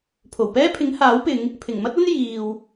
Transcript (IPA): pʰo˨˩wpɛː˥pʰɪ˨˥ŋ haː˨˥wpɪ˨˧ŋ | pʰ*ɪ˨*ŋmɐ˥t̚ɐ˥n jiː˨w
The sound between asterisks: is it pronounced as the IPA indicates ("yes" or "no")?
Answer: no